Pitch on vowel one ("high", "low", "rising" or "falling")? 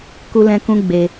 high